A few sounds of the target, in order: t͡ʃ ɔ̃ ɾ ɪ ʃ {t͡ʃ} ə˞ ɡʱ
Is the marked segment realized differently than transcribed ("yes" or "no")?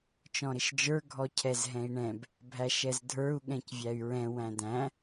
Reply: yes